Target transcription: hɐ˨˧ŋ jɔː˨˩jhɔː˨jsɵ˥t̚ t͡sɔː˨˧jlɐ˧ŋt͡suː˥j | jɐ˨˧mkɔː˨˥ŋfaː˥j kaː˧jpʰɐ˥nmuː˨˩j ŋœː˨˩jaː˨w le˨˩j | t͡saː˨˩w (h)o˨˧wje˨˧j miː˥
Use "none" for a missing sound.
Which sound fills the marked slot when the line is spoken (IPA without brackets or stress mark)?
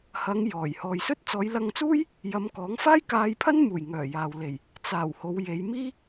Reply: h